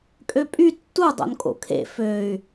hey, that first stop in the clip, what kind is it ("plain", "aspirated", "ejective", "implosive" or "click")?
ejective